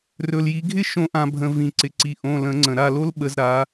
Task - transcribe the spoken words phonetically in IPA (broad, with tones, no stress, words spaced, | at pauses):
rɵ˩l ji˩˧ɡʱɪ˥ ʃõ˧˩˧ʔã˩bʱə̃˩ vĩ˩ǀɪ˩ǀi˩ ʔõ˩˧˩lə̃˧˩˧ŋ͡ǀə̃˩ ɾa˩˧˩lo˥lɓə˩˧z ɾa˩˧